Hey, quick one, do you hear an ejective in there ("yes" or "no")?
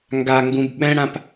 no